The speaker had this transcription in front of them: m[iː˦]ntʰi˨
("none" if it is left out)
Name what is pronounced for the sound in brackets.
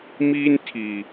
iː˦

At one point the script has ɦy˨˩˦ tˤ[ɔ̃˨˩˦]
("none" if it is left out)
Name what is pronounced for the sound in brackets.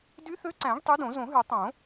õ˨˩˦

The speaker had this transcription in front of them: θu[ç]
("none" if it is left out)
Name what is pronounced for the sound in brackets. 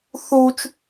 t͡ʃ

